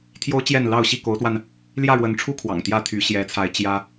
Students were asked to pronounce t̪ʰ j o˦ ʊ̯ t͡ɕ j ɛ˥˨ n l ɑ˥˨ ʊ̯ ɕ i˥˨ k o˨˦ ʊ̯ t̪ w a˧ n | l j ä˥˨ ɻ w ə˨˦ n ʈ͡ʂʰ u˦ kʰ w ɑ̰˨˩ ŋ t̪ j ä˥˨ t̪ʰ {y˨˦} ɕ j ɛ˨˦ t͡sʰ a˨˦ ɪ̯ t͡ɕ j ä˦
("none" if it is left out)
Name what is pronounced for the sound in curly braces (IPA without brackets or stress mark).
y˨˦